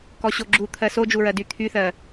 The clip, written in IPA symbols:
k ɔ ɕ o ɡ͡ǁ u t̪ʰ ɜ s o d͡ʒ u ɹ ɜ d y t̪ʰ y θ ɜ

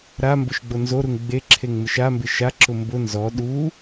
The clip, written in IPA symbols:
ɾ a m b ʊ ʃ ɡ͡b o n z o ɾ u ŋ ɡ͡b e ǁʰ e ŋ m ɪ ʃ a m b ɪ ʃ a ǁ ʊ m b ʊ n z ɔ ɗ u

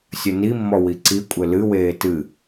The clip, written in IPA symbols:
sʲ ɘ n i mː ɔ w i ǀ i kʷʼ ɘ l ɨ w eː t ɨ

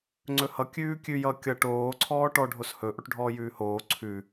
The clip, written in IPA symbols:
ŋ͡ǀ ɵ h ʌ kʲ ʉː kʲ ʉ j ʌ kʲ ʌ ʈ oː ǀʰ ɔː ʈ ɔ ɖʱ o s h ɵ ʔ o ʈ ɖʱ ɔː j ʉː h oː ǀʰ ʉ

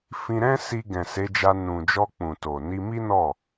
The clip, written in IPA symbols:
f ĩ˧ ɾ ɛ̃˦ s i˧ ɡ ɛ̃˨ s e˨˦ d͡ʒ a˧ n ũ˨ d͡ʒ ɔ˧ k͡p ũ˨ t o˨ n i˧ m i˦ n ɔ˦˨

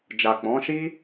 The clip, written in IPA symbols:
d͡ʒ a˨ k͡p ɔ̃˨˦ ʃ i˦

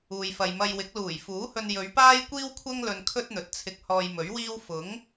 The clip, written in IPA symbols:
uː˨ j f ɐ˨ j m ɐ˧ j w ɪ˨˥ k̚ l uː˨˩ j f uː˨˥ h ɵ˧ n j ɵ˨˧ ɥ p aː˥ j kʷ iː˥ w kʷʰ ɐ˥ ŋ l ɵ˧ n kʰ ɵ˥ t̚ n̪ ɵ˨˥ t̚ t͡sʰ ɪ˧ k̚ h ɔː˧ j m ɵ˨˥ ɥ w iː˥ w f ʊ˨˥ ŋ

